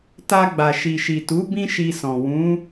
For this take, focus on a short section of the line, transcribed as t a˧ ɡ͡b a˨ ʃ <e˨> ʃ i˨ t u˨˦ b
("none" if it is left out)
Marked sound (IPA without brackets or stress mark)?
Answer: i˨